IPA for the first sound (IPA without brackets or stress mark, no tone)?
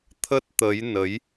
t̪ʰ